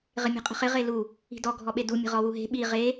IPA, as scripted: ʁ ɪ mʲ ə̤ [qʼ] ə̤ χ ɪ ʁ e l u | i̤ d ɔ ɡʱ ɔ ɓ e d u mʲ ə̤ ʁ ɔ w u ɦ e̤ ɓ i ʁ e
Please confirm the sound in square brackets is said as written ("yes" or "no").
yes